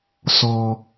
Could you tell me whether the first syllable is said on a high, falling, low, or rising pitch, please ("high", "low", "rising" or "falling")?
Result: low